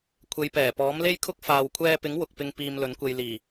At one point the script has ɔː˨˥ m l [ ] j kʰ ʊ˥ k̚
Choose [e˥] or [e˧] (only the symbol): e˥